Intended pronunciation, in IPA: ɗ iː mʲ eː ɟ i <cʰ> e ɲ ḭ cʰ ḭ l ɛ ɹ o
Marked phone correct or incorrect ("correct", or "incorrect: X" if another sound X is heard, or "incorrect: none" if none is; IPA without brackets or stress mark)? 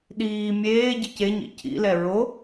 incorrect: c